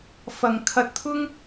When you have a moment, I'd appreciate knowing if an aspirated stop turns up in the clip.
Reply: yes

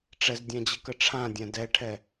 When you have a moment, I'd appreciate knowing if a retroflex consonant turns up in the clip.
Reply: yes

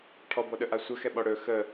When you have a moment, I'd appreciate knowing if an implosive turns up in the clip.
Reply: yes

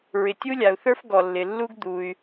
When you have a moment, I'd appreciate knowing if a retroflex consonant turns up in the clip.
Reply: no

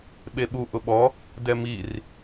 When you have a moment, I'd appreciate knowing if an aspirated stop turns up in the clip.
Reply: no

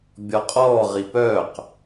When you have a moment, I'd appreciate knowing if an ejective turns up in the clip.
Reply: yes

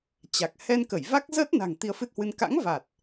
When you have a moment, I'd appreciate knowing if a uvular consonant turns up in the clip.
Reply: no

